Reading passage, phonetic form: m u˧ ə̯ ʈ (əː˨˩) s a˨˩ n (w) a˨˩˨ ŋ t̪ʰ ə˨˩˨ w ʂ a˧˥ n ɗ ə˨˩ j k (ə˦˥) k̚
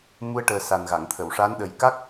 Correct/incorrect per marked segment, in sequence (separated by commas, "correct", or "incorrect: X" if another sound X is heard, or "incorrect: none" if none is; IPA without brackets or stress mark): correct, incorrect: ɣ, incorrect: a˦˥